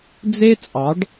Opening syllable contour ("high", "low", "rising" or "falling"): high